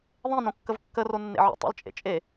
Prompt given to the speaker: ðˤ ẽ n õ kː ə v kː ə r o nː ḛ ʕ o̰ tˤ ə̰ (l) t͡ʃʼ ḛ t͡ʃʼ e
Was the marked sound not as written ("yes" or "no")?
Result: no